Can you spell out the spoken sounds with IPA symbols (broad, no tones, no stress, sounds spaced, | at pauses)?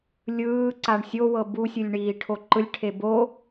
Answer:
lʲ ɯː ǀ a ɳ sʲ o w ɤ b u sʲ ɯ lʲ ɳ iː ʈʰ o ǃ ɯ lʲ ʈʰ e b o